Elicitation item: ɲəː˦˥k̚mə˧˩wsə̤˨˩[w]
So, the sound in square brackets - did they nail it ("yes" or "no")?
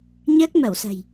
no